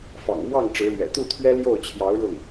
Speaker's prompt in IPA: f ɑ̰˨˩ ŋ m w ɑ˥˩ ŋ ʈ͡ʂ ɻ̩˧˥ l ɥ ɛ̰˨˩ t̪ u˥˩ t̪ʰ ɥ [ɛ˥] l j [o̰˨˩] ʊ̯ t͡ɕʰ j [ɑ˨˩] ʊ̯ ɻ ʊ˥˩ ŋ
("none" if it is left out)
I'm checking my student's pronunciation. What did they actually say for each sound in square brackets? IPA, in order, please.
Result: ɛ˥, o˥˩, ɑ˧˥

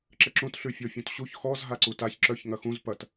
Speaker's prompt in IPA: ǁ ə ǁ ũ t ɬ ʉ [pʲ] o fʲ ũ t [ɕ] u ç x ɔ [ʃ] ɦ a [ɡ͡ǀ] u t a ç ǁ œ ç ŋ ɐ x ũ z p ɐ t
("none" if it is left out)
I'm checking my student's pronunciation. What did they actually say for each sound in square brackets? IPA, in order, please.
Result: fʲ, ɕ, z, ǀ

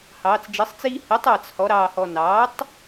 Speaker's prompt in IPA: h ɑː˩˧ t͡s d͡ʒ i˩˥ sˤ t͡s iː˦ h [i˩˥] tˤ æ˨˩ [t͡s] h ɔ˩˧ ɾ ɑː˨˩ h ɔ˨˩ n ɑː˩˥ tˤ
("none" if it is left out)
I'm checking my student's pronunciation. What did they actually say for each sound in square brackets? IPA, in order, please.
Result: i˩˥, t͡s

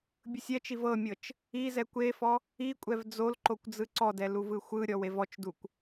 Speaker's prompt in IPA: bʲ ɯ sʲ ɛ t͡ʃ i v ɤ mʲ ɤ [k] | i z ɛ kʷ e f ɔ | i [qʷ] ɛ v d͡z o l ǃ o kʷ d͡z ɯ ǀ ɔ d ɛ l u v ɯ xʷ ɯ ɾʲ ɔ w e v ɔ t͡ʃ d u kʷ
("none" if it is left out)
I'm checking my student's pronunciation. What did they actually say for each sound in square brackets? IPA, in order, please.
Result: t͡ʃ, kʷʼ

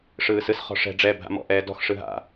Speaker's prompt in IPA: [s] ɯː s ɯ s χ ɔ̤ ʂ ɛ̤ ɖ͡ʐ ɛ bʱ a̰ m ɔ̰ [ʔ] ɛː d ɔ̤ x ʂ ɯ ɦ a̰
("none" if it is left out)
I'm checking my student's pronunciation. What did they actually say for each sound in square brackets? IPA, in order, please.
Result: ʂ, ʔ

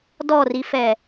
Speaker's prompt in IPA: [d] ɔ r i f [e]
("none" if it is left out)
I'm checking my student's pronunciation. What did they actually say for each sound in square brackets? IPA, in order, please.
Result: d, ɛ

